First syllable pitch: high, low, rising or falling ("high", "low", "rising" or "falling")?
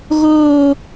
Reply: high